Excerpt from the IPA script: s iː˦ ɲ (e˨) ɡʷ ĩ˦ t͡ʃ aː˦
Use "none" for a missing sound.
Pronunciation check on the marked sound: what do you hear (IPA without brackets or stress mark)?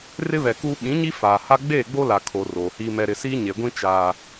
e˨